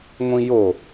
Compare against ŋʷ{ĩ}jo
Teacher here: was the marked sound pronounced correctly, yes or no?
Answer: yes